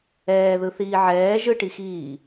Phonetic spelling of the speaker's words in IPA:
ɛːðɯθiː ʕɛː ʒɯʈixiː

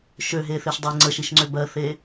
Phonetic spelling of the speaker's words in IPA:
ʃøɦeθeʃ dˤi ŋ͡ǀəʃiʃŋ͡ǀø bɜθe

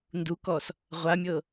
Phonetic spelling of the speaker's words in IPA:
ndukɔs | ʁʷamʲɤ

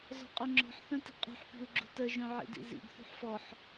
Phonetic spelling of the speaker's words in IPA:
zɔ̤qʼøŋ͡ǁɔ̤ħ θœ̃ti̤qʼṳħ pi̤u̯ɡ͡ǁṳtə ʒœ̃ʕḭdḭzḭɡ θṳħfɔħ

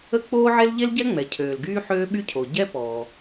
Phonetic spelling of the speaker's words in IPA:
ə˥k͡poː˥ʕe˥l ʎe˥lɟɛ˥ŋ͡mɛ˩cʰøː˩l ɡyː˥ħøː˥ ɓy˥cʰo˩ ɟɛ˥pɔː˩

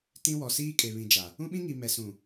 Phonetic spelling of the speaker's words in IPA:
tĩ˦wɔ˨ siː˦kʼe˨βĩ˨d͡ʒa˨ | ũ˦ɓĩ˦ŋi˨ mɛ˨sũ˨

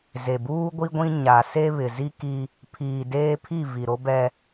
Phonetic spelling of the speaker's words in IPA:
ze˨buː˦ ɡʷi˦ɡʷĩ˦ ɲa˨ se˦βɪ˨zi˦ki˦ | pʰiː˨deː˦pʰi˦˨ vi˨ɾo˦bɛ˦

